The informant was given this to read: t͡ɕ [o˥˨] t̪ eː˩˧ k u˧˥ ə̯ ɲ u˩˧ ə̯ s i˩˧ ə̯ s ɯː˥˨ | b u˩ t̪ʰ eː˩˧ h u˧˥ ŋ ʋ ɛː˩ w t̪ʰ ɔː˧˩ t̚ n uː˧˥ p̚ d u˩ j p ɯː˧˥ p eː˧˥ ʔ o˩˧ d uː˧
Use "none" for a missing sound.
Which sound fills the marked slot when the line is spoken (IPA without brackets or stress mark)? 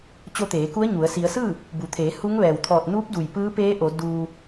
o˧